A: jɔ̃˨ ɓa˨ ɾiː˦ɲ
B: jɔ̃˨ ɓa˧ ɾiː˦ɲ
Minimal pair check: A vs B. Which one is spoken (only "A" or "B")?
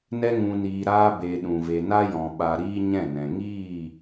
A